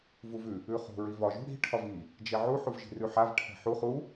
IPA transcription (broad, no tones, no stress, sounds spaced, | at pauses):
v u v ʉ | ʉ χ ṳ ɹ i v ɒ ʒ ṳ ɽ i̤ ʈʰ ɒ v i | d͡ʒ ɛ ʕ u ħ u v ʒ i̤ r ʉ ħ a v ʈʰ ɛ̤ ħ u χ u